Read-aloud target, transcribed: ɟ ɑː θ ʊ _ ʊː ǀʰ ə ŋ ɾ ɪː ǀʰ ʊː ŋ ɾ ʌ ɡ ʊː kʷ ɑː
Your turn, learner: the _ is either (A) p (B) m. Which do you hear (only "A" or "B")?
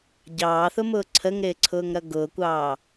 B